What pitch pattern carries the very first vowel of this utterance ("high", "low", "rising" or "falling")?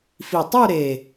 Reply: low